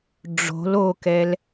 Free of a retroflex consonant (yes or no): no